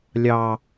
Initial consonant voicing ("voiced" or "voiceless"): voiced